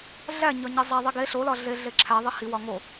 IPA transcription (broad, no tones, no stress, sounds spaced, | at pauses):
ɮ æ ɲ ɒ ɲ e zˤ æ ðˤ i ɡ e ɬ o l ɒ ɮ e ɮ e ǁʰ æ ðˤ i h i w ɒ ŋ o